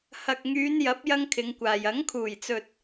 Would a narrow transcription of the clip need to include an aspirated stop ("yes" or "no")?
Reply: yes